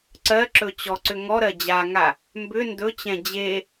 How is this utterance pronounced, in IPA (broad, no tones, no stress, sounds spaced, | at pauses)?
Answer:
ǀ ɜ ǁ ɵ t͡ɕ ɔ ǀ ʏ ŋ ɔ ɾ ɜ d͡ʑ a ŋ a | m b ʏ n d ɵ t͡ɕ ɛ̃ d͡ʑ e